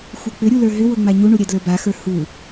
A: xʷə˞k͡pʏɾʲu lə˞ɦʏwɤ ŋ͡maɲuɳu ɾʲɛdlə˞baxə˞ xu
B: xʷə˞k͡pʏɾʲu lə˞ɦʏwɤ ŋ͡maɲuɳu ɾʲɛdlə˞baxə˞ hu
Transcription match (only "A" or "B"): B